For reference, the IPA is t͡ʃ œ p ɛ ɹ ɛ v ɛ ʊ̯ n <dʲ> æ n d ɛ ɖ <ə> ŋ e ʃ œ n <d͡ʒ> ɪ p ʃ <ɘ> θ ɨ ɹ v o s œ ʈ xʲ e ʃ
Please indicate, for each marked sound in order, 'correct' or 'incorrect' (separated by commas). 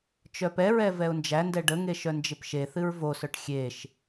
incorrect, correct, correct, incorrect